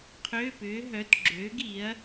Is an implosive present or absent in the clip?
absent